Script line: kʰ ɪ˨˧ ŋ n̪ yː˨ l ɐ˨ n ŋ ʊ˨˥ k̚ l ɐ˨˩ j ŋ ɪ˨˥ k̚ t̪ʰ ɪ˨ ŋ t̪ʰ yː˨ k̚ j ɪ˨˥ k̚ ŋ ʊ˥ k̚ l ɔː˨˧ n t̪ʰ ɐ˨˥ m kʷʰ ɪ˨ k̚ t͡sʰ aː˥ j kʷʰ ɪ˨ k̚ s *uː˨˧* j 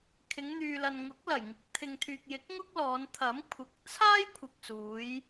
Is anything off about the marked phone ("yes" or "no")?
no